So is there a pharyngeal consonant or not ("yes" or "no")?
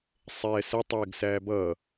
no